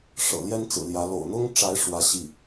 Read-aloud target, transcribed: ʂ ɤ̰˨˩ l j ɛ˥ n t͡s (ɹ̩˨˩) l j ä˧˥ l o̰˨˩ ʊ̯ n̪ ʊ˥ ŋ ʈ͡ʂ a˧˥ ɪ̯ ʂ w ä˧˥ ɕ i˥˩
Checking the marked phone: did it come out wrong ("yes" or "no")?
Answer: no